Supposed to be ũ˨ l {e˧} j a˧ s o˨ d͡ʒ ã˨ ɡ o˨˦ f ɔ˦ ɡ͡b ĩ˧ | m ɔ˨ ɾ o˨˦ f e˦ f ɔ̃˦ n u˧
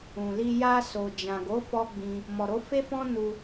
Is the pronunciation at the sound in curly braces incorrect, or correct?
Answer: incorrect